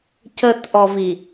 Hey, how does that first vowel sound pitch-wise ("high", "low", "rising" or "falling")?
low